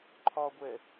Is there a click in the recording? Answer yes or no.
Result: yes